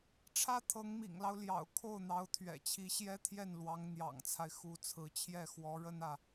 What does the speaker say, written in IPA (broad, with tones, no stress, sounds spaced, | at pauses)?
ʈ͡ʂʰ ä˥ t̪ʰ ɤ˧˥ ŋ m ḭ˨˩ ŋ l ɑ˦ ʊ̯ l j ɑ̰˨˩ ʊ̯ kʰ o˥˩ ʊ̯ n̪ ɑ˧˥ ʊ̯ t̪ʰ ɥ ɛ̰˨˩ t͡ɕʰ i˧˥ ɕ j ɛ˥ t̪ʰ j ɛ˥˩ n l w ɑ˧˥ ŋ n̪ j ɑ̰˨˩ ŋ t͡sʰ a˦ ɪ̯ x u˧˥ t͡sʰ ɹ̩˧˥ t͡ɕʰ j ɛ˥˩ x w ɔ˧˥ ɻ ə˥ n ä˨